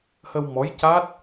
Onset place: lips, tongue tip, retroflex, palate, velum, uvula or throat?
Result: throat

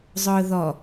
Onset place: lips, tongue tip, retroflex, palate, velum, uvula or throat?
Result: tongue tip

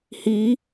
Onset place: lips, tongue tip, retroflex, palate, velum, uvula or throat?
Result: throat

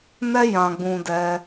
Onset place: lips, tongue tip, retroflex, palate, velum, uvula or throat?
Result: tongue tip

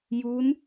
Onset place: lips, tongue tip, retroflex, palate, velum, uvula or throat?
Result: palate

